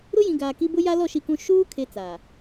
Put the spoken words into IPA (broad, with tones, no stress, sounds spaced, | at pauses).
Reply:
ɾ ʊ˦ j ĩ˨ ɡ aː˨ k i˦ b ʊ˦ j a˦ l ɔ˦˨ ʃ i˦ k ũ˦ ʃ uː˦ kʰ e˦ t͡s aː˨